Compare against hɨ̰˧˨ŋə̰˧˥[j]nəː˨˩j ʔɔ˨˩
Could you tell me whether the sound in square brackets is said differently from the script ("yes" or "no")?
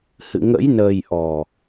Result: no